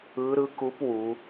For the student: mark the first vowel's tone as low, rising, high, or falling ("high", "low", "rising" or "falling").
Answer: rising